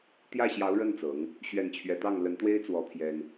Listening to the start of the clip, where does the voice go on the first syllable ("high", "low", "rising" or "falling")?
falling